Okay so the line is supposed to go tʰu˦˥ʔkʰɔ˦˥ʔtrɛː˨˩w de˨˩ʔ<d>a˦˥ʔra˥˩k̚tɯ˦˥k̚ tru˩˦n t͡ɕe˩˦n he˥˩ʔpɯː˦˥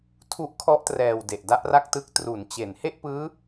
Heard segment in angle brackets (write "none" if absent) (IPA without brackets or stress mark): d